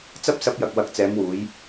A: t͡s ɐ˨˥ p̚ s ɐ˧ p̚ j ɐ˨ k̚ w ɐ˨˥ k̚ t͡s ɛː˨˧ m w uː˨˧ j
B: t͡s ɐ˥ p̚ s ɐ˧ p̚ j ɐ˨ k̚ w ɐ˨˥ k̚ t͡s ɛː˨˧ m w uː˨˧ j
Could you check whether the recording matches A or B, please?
B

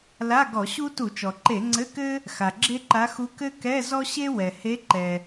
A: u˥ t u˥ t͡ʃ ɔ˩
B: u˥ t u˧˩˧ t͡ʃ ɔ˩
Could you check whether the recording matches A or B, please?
B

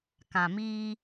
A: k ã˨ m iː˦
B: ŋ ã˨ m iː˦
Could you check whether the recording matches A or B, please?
A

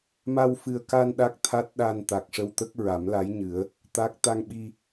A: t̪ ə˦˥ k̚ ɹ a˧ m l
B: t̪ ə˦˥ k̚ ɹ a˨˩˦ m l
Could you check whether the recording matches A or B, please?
B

